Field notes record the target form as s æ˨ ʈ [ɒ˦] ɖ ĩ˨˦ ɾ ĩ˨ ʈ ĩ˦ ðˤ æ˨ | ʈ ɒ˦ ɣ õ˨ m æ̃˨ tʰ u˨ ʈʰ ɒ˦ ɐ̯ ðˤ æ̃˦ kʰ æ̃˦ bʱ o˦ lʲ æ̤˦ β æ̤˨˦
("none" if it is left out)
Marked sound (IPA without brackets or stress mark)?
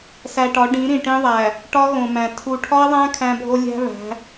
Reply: ɒ˨˦